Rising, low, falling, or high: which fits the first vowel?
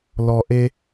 low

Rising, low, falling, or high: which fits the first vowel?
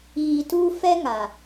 low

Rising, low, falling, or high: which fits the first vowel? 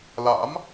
rising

